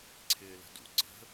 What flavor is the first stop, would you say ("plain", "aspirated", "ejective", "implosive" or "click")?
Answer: click